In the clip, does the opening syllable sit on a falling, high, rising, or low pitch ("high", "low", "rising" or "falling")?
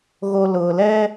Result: low